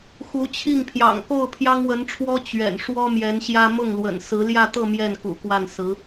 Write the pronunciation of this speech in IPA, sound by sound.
xu˧˥t͡ɕʰi˥˩ŋpʰjɑ̰˨˩ŋ ko˥˩ʊ̯pʰjɑ˥ŋwə˧˥nʈ͡ʂʰwɔ˥ t͡ɕɥɛ̰˨˩n ʂwɔ˥mjɛ˧˥nɕjä˥ mʊ˥˩ŋlwə̰˨˩n sɹ̩˧˥ljä˥˧t̪ɤ˥˧ mjɛ˥˩nkṵ˨˩kwa˥˩nsɹ̩˧˥

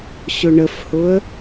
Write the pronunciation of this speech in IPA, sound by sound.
ɕʊɳəfhʊə̯

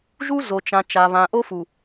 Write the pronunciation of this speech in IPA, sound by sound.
ʒu˦ zo˨t͡ʃã˨ t͡ʃa˨ βã˨ʔo˦fu˨

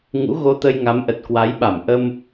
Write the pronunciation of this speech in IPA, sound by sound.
ŋṵ˧˥ɣo˧t̪ə˧j ŋa˨˦mʔə˨˩t̚kwa˨˦jɓa˧˩m ʔə˧m

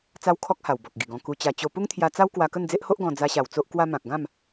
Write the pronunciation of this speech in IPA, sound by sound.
t͡sa˦wkʰɔ˦k̚ ha˨˩wbɔ˨k̚ɡi˨˩ɡɔ̃˧ ku˧t͡ɕa˧ t͡ɕo˧ pu˦ŋt̪ʰja˧t͡sa˦w kwa˧kə˥˧nd͡ze˦ʔho˦ʔ ɡɔ̃˧ d͡za˧ɕa˨˩w t͡so˦ʔkwa˦mã˨k̚ ɡã˥˧m

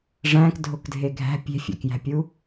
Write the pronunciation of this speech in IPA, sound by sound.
ʐæ̃kdʱokdʱe ɡʱæ̤ pʲe̤fʲæ̰kjæ̤pʲu

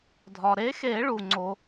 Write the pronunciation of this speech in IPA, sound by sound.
dʱɒ˩ɾe˨˥xe˨˩˦ ɭu˩ŋ͡ǀo˨˩˦

